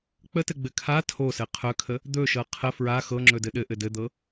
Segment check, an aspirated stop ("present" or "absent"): present